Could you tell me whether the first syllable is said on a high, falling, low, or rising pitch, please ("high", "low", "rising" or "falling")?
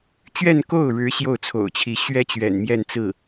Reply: falling